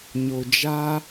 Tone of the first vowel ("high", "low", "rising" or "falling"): low